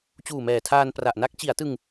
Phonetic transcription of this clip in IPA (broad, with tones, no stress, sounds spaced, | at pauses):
t͡ɕ uː˨˩ m ɛː˨˩ tʰ aː˧ n p r a˨˩ ʔ n a˦˥ k̚ t͡ɕ i˩˦ a̯ t ɯ˧ ŋ